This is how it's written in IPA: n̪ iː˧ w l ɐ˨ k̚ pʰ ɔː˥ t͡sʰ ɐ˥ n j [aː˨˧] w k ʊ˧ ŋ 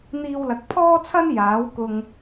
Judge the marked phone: incorrect: aː˨˥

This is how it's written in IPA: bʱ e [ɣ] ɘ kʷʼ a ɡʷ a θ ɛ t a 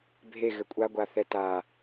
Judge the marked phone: correct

